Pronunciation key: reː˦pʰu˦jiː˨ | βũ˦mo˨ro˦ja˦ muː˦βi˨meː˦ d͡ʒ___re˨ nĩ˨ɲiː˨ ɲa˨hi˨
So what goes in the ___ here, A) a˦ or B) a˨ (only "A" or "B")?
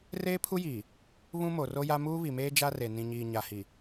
A